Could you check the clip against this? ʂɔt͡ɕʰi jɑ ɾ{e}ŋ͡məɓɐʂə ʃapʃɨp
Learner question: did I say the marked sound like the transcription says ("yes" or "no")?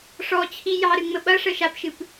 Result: no